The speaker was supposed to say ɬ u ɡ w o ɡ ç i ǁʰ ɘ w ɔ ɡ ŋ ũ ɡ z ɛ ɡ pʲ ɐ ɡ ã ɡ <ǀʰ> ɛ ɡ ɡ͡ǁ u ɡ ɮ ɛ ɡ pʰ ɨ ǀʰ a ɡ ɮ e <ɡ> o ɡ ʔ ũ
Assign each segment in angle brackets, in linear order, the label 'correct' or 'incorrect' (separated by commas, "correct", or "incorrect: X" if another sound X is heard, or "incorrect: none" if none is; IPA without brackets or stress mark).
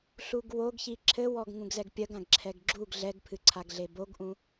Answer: incorrect: ǁʰ, incorrect: b